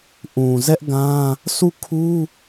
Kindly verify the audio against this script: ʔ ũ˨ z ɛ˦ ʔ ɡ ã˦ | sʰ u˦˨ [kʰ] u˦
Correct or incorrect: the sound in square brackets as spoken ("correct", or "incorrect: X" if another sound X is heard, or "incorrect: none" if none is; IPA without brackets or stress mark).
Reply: correct